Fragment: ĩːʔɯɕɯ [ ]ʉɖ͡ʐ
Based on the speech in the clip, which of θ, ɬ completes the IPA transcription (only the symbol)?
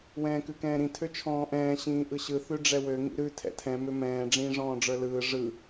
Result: θ